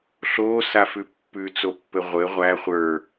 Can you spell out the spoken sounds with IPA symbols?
ɬ oː s a f ʉ pː ʉ t͡s o pː ɘ ʁʷ ɘ ʁʷ æ χʷ ə˞

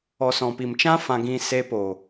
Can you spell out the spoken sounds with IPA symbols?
ɔ˨ s ɔ̃˨ p i˨ m t͡ʃ ã˦ f ã˧ ɡ ĩ˧ s e˧ p o˨

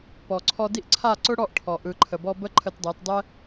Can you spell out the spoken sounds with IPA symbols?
p ɔ˨ ǀʰ ɔ˧ d i˦ ʔ ǀʰ a˦˨ ǀ ʊ˦ ɽ ɔ˦˨ ʔ ʈʰ ɔ˨ ʔ ɯ˨ ǃʰ ə˨ b ɔ˧ b ə˦ ǃʰ ə˧ t dˤ ɜ˨˦ t dˤ ɛ˦

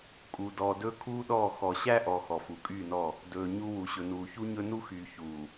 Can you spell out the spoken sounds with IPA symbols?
kʼ u˨ d ɔː˨ d ɵː˦ kʰ uː˦ ɗ ɔː˦˨ x ɔ˨ ɕ æ˦ ʔ ɔ˨ x ɔ˨ f u˨ kʼ yː˦˨ n ɔ˦˨ | d ɵː˨ ɲ u˨ w u˨ ɕ ɵ˨ n uː˨ ç u˦ ɲ ɵ˦ n u˦ x yː˨ ç uː˨

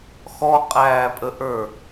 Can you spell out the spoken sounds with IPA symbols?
x ɔ qʼ æː pʼ ə ʔ ə˞

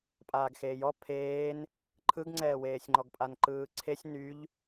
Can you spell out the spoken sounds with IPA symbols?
pʼ aː ɡ x eː j ɔ pʰ eː n | ǃʰ ɯ ɡ ŋ͡ǀ ɛː w eː sʲ ŋ͡ǃ ɔ ɡ pʼ a n ǃ ɯː ǀʰ e sʲ n y ʎ

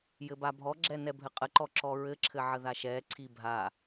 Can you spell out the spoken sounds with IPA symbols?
j ɘ b a bʱ ɔ ɡ͡ǁ ɛ n ɛ bʱ ɘ qʼ ə ǃ ɔ ǁ ɔ ɹ ɘ ǁʰ ɘ ʕ ə ð a ʃ ɛ ǀʰ i bʱ a

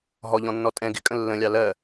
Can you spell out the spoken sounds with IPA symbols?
ɦ ɔ ʎ ɔ̃ nː ɔ tʼ ɛ̃ ɡ ɪ kʼ ə̃ lː ə̃ lʲ ɑ l ɜ

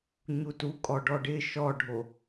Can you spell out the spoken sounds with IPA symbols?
ɲ u t u kʼ ɔ ɖ ɔ ɖ ɪ ʃ ɔ ɖʱ o

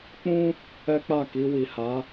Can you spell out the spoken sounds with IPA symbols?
k͡p ũ˦ | ɛ˦ k͡p a˦˨ k i˧ w i˨ h a˨˦

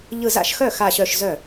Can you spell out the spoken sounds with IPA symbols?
ʎ ɯ˧˩ z a̰˥˩ ʃ x œ˥˩ x a˧˩ ɕ œ˧˩ ʃ z œ˥˩

